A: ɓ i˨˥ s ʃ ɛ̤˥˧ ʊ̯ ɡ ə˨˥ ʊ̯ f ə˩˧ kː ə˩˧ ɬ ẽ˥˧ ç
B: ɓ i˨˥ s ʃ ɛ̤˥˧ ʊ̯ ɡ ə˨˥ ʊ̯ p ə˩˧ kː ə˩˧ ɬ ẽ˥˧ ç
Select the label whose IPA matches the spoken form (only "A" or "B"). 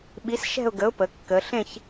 B